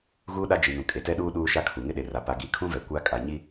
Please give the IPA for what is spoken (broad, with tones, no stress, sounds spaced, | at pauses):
ɣ uː˦ ɗ a˦ d͡ʒ i˨ n ũ˨ kʼ e˨ t ɛ˦ ɗ uː˦ ɗ uː˦ ʃ a˦ kʰ u˨ ŋ ɪ˦ ɗ e˨ r a˨ p a˨ ɡ i˨˦ kʰ ũ˦ v ɛ˨ kʷ a˦ kʼ a˨ ɲ i˦